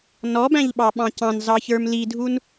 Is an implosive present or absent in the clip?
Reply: present